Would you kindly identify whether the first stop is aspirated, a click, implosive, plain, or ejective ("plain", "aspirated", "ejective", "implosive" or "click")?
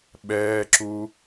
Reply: implosive